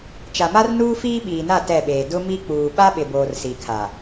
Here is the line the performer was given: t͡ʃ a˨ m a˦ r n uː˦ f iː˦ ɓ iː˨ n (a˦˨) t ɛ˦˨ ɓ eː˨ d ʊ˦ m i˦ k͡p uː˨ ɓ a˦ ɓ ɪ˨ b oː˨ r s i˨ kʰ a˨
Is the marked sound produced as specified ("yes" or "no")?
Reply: yes